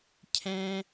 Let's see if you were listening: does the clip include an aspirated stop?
yes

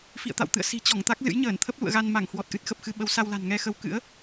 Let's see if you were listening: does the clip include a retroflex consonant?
no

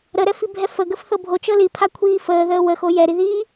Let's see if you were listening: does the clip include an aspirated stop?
yes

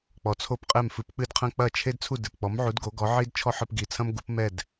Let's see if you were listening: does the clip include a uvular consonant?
yes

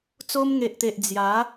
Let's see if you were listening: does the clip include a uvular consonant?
no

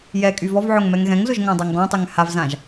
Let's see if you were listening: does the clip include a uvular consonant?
no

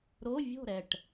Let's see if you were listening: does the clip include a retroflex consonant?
yes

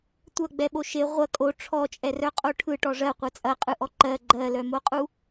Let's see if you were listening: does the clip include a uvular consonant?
yes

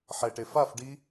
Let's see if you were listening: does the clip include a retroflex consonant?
yes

